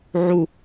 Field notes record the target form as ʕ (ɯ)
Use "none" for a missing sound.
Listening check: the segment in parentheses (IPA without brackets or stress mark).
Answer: u